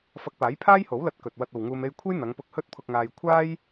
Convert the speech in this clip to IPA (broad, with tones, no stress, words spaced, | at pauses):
fɐ˧k̚paː˨˥j pʰaː˥jho˨˥wlɐ˧t̚ kɵ˨t̚wɐ˧t̚o˨wŋuː˧m e˧jkʷʰe˥jn̪ɐ˨˧ŋpʊ˧k̚ hɵ˥t̚pʰʊ˧k̚ŋaː˧j kʷʰaː˥j